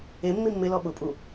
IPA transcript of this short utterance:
e mː i mː ɪ l ɔ ɓ ʊ pʼ u

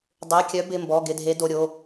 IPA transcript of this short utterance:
dˤ e˩˧˩ kʲ œ˨˦ b ɪ˩˧˩ m b ɔ˩˧˩ ɡ ɪ˩˧˩ dʱ e˨˦ d o˩˧˩ ɾʲ o˩˧˩

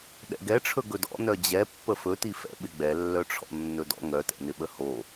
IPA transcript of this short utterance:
ɗ ɛ̰ ɡ ɛ ʈ͡ʂʰ ɵ ɡ ɵ d ɔ̰ n œ d͡ʑ ɛ pː ə f ɵ t i f ɛ̰ ɓ ɪ ɡ͡b ɛ lː œ ʈ͡ʂʰ ɔ̰ nː ɵ d ɔ̰ ŋ œ t ɛ̰ n ɪ ɓ ə h o

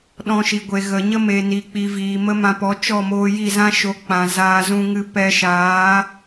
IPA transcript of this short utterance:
ɗ ɔ̃˧ ʃ i˨ ɡʷ e˨ ɣ ə˨ ɲ ə˦ m e˨ n i˨ k͡p i˨ v iː˨ m ə˦ m ã˧ p ɔ˨˦ t͡ʃ ɔ˦˨ m oː˧ j i˦˨ z ã˦ ʃ o˨˦ k͡p ã˨ z aː˧ z ũ˧ ŋ ɨ˧ p ɛ˧ ʃ aː˨˦

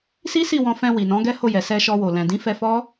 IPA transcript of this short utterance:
s i˦ s i˦˨ w ɔ̃˧ f ɛ̃˧ w i˨ n ɔ̃˨˦ ɡ ɛ˦ h o˦˨ j ɛ˨ s ɛ˧ ʃ ɔ˧ w o˨ l ɛ̃˨ d ĩ˨˦ f ɛ˧ f ɔ˦

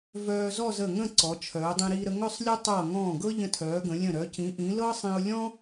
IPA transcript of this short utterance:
v œː˧ z ɔ˥˧ z ə˧˩ ŋ ə̃˥˧ ǀ ɔ˩˧ t͡ʃʰ œː˩˧ dˤ ĩ˧ ɾ iː˧ ɾ ə˧ ŋ œ˥˧ sˤ lʲ ɤ˥ tˤ ɤː˧˩ ŋ ɔ̃ː˧˩ ɡ ɤ˥ ʎ ə̃˧ tʰ œː˩˧ ɡ ə̃˩˧ lʲ ə̃˧˩ ɾ œ˩˧ c ĩ˩˧ ʔ ĩ˩˧ l ɤ˥ sˤ ĩ˧ ʊ̯ lʲ ɔ̃˥

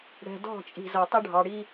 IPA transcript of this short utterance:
ɽ ɛ̤˨ d ɔ̤˦˨ t͡ʃʼ i̤˨ z ʌ˨ tˤ ɪ˦ ɖʱ ɑ˨ ɽ i˦

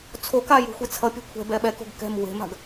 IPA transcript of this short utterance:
t͡sʰ o k a j ṳ xʷ i t͡sʰ ʌ pʲ ɛ̤ kʷʰ ɛ̤ b ɛ ɓ ɛ k o̤ ɡ k ɛ̤ m w e̤ m a̤ ɡ

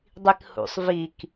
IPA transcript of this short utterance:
dˤ i k h ṵ sˤ v i k

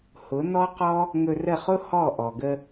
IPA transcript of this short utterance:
h ʊ˨˦ n ɔ˦ q ɔ˦ | ŋ ɵ˧ r ə˦˨ χ ʊ˦ h ɔ˦˨ ʔ ɔ˨ ɡ ə˧

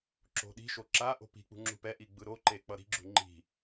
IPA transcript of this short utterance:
ǁ o̤ ɗ i̤ ʃ o ǁ a ʔ o̤ p i̤ k͡p ṳ ŋ͡ǁ ṳ p ɛ ʔ i ɡ͡b ɯ ɾ o ǃ e k͡p ʌ ɾ i̤ ɡ͡ǁ ṳ ŋ͡ǃ i̤

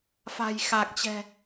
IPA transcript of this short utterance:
f a̤˨˩ j x a˨˩ k̚ t͡ɕ ɛ̤˨˩

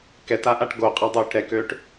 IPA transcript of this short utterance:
k ɛ t a ʔ a ʈ ɡ o qʼ ɐ dˤ øː ʈ ɾ ɛ k øː ʈ

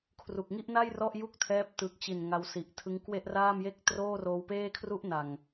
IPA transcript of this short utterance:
kʰ r u˨˩ k̚ ŋ i˥˩ ʔ n a˥˩ j r ɔ˥˩ ʔ j u˥˩ k̚ tʰ ɛː˦˥ p̚ t ɯ˨˩ k̚ t͡ɕ i˨˩ n ŋ a˧ w s i˨˩ ʔ tʰ ɯ˦˥ ŋ k w e˥˩ ʔ r aː˥˩ m j e˥˩ k̚ t r oː˥˩ r oː˧ w p eː˥˩ kʰ r u˥˩ ʔ n a˨˩ ŋ

